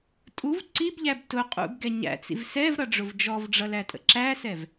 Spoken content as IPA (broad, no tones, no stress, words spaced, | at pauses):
tʼuv ǀibʎæb tʊqʼṵbɡɛ ɲæ̰t͡sḭv sɛvɾʌɖ͡ʐʊv d͡ʒɔvɖ͡ʐʌlætʼə̰ ǁæsɛv